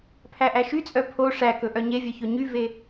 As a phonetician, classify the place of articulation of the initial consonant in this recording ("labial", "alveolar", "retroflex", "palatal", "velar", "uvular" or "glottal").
labial